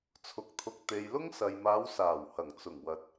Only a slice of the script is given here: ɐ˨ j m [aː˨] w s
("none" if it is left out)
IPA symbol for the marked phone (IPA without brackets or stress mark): aː˨˧